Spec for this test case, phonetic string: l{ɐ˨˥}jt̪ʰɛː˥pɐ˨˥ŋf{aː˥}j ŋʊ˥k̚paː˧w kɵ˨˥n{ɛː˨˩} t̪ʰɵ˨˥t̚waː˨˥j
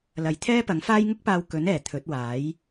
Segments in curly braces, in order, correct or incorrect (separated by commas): incorrect, correct, correct